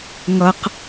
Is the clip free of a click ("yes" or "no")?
yes